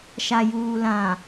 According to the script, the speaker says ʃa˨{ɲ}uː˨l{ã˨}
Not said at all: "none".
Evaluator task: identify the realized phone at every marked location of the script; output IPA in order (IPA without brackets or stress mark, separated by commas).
j, ã˨